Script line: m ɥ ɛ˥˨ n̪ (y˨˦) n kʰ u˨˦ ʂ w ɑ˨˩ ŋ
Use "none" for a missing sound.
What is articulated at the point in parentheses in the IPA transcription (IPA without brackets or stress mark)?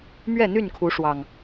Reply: y˥˨